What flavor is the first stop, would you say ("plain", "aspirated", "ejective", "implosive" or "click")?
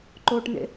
click